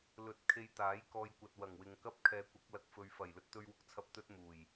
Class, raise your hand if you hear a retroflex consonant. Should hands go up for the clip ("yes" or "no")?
no